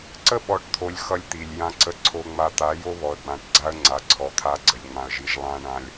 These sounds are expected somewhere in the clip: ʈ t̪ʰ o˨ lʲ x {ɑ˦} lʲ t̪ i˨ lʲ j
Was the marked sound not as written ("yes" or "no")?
yes